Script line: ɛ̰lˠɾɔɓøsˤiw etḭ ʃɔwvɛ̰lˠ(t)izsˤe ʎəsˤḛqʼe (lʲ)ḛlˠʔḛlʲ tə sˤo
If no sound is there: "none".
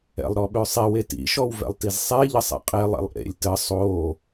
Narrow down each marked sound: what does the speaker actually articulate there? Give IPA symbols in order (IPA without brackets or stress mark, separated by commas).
t, lˠ